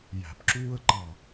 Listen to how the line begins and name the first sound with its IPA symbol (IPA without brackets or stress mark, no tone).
j